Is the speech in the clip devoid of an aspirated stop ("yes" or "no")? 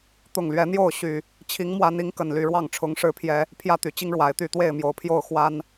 no